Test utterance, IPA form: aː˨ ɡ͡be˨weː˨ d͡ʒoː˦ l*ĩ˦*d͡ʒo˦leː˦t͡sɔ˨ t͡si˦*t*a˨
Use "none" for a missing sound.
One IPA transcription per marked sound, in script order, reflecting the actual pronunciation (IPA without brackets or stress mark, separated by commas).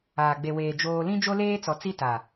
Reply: ĩ˦, t